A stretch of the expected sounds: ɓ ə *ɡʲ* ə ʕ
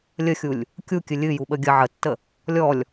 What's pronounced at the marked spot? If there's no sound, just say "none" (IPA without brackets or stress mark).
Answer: ɡʲ